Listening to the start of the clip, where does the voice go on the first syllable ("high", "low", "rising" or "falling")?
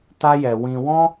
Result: high